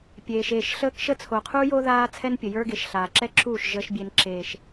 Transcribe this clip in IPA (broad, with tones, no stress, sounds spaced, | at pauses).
pʲ eː˨ ʃ eː˦˨ ʃ ɬ əː˦ k ʃ ə˦ t͡sʰ o˨ qʰ uː˦ j o˦ ð aː˦ t͡sʰ ɛ˦ n pʲ ə˨ j ə˞˦ ɡ e˨ ʃ ɬ aː˨ ǁ ɛ˦ ǁʰ uː˦˨ ʃ ʒ əː˦ ʃ bʲ e˦ n ǁ eː˦ ʃ